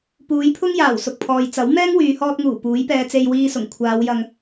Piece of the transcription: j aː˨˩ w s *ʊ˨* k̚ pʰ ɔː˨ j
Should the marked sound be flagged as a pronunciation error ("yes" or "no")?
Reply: no